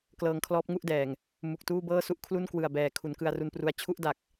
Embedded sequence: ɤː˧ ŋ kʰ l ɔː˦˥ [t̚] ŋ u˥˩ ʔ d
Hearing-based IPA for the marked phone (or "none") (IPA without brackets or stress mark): p̚